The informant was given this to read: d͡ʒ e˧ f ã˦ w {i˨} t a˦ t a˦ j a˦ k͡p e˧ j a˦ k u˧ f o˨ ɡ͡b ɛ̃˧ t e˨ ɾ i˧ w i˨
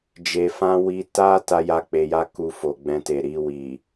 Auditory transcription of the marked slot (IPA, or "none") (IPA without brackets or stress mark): i˧